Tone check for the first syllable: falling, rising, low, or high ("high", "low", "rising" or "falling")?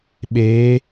rising